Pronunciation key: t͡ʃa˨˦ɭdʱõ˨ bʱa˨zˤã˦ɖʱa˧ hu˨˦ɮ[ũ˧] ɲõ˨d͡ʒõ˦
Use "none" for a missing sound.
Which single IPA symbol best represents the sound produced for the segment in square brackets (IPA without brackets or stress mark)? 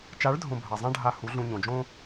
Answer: ũ˧